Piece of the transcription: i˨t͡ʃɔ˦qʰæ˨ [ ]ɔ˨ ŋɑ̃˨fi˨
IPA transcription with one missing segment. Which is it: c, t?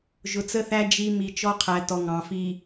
t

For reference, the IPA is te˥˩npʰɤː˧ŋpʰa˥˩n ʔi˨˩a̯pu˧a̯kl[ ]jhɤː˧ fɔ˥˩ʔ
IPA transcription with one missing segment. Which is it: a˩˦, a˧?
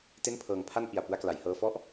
a˩˦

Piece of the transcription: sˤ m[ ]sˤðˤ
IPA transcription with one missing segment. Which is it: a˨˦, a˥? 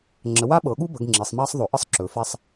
a˥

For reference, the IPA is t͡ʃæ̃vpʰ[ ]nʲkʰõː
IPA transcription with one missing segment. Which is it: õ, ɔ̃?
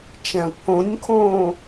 õ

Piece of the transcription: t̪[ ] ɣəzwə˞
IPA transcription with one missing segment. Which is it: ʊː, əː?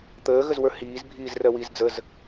əː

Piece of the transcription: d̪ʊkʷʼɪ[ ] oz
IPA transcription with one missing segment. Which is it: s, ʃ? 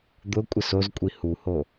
s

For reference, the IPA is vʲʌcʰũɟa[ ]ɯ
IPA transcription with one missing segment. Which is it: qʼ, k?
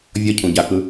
k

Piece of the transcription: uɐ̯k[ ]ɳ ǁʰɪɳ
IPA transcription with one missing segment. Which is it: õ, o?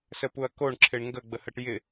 o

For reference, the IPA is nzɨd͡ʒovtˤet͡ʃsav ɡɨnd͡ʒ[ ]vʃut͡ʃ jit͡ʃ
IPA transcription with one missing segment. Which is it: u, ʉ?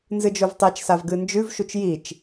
ʉ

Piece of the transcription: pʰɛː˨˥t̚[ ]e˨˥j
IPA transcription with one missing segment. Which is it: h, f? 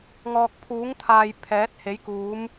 h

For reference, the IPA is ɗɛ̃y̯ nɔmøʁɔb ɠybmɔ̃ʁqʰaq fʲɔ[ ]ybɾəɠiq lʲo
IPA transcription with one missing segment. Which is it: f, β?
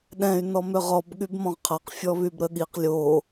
β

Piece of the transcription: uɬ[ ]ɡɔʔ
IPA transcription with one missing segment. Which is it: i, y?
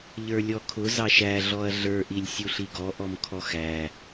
i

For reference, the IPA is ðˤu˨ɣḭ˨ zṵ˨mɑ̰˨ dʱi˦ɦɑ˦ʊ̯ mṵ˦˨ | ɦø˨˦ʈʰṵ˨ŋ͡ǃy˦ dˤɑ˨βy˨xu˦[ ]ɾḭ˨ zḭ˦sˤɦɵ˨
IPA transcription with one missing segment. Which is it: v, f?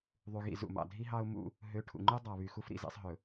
f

